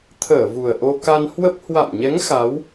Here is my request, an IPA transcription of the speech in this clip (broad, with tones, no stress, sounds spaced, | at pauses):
t̪ʰ əː˧˩ v u˨˩ ə̯ ʔ o˧ k a˧ n h w ə˦˥ p̚ h w a̰˧˨ m ɲ ɛ˨˦ ŋ x a˨˦ w